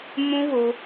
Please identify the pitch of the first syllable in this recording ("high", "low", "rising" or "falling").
high